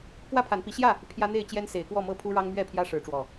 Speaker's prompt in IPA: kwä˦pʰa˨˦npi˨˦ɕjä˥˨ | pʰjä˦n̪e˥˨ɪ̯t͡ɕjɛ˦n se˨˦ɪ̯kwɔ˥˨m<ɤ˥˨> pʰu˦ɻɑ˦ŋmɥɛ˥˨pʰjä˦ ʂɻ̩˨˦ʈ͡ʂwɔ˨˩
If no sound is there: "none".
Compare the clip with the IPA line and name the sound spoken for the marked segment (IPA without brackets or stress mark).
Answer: ɤ˥˨